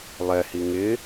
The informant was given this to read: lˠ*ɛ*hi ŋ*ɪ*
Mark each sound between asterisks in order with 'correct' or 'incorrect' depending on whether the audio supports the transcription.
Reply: correct, correct

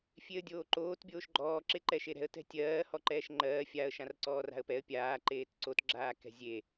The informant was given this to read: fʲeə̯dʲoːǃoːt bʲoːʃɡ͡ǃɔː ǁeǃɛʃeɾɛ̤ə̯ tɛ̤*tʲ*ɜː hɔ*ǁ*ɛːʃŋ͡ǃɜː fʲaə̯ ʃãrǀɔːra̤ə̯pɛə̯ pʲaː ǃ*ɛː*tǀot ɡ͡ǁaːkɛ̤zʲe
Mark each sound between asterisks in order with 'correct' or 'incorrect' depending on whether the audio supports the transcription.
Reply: correct, incorrect: ǃ, incorrect: eː

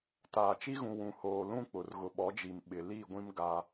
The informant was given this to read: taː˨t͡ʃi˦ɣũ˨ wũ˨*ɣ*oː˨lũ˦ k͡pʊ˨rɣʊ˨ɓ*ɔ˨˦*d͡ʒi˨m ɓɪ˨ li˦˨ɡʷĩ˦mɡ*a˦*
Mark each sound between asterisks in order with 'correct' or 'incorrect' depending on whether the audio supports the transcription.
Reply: incorrect: h, correct, correct

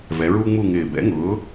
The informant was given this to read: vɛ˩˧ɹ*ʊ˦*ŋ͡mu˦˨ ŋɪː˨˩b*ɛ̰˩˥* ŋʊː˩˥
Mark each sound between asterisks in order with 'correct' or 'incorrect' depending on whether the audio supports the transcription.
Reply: incorrect: u˦, correct

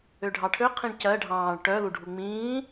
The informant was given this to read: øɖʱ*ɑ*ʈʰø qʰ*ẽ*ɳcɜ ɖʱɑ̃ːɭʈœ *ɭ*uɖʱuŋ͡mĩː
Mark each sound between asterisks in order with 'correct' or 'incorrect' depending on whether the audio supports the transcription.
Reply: correct, incorrect: ĩ, incorrect: l

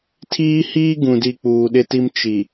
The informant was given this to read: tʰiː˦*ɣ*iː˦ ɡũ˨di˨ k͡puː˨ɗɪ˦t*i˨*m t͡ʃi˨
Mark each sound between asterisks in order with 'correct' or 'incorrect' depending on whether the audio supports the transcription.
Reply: incorrect: h, incorrect: i˦

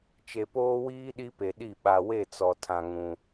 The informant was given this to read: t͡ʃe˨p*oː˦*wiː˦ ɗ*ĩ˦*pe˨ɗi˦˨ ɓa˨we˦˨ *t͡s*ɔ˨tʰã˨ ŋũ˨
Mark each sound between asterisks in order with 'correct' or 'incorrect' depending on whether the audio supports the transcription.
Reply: correct, incorrect: i˦, correct

